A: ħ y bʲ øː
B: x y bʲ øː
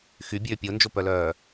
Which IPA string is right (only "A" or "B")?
B